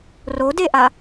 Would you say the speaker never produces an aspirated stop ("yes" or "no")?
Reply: yes